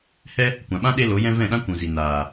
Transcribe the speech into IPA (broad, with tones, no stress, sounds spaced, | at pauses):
h ɛ˦ | kʷ ã˨ ɓ ã˦ ɗ e˦ l o˨˦ j ɛ̃˦ v ɛ̃˦˨ ɗ ã˦ kʷ ũ˨ z i˨ n aː˨